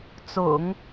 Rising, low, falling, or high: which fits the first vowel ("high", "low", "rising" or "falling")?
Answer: low